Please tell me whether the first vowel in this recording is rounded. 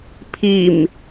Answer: no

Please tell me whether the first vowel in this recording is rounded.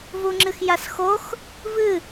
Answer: yes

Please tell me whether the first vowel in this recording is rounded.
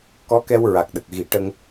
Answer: yes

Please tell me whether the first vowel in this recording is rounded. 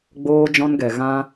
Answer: yes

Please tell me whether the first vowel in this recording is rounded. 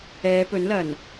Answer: no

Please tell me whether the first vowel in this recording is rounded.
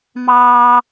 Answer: no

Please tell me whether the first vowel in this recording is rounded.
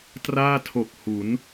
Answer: no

